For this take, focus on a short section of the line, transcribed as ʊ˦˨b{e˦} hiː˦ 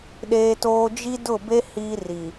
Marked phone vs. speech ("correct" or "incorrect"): correct